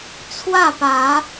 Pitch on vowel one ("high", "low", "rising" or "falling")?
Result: falling